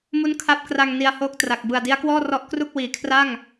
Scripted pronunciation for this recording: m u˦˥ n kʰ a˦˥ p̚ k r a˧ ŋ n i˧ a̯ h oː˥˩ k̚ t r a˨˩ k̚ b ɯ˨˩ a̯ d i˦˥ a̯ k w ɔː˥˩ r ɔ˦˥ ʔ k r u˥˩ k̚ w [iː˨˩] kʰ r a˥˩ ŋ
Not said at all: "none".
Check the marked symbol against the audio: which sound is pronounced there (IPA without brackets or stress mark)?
iː˨˩